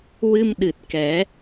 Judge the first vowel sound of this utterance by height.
high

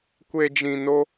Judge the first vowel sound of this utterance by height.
mid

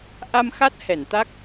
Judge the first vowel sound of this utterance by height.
low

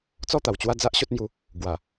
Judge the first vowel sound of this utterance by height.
mid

